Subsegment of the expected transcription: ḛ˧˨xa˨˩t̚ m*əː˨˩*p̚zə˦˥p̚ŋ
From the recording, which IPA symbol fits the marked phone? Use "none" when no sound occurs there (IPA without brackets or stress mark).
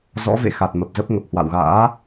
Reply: ə˨˩